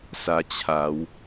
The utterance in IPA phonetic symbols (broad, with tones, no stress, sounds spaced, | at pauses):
s a˧ t͡ɕʰ a˨˦ w